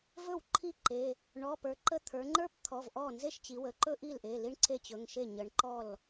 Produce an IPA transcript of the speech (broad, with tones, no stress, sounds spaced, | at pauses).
v ɵ˥˩ w ǃʰ i˥˩ ǃ e˩˧˩ | ɳ ɔ˩˧˩ p ə˞˩˧ ǃ ə˥˩ t̪ʰ ə˞˩˧ ŋ͡ǃ ə˞˥ p t̪ʰ ɔ˩˧˩ v ʔ ɔ˥˩ n z e˥˩ ʃ t͡ɕ i˩˧ w ə˩˧˩ ǃ ɵ˥ ʔ i˥˩ l ʔ e˩˧˩ l i˥ ɳ ǀʰ e˥ t͡ɕ ɵ˩˧˩ ŋ ʃ e˥˩ ɲ ə˩˧ ɳ ǃ ɔ˥˩ l